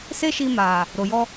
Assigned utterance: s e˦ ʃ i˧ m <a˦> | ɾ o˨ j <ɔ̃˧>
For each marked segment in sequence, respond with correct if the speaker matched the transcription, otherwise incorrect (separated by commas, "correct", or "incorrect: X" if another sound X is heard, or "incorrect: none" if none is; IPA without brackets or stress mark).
incorrect: a˨, incorrect: ɔ˧